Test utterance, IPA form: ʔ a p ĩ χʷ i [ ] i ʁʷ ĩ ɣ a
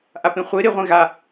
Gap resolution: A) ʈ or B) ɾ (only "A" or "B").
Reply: B